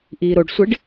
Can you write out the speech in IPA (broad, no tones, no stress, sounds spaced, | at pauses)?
ʔ iː ɾ o ɖ sʷ ɪ ɖ